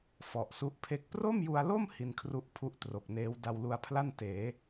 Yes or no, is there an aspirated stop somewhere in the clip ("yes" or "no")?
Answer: yes